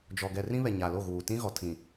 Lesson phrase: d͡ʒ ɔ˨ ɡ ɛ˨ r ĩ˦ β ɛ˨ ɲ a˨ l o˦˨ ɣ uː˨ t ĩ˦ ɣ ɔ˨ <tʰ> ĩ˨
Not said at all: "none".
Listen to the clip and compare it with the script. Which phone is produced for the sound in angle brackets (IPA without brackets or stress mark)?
tʰ